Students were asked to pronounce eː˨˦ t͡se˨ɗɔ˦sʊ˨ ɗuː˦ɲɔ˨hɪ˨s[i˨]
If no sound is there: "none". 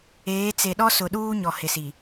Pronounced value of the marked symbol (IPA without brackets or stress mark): i˨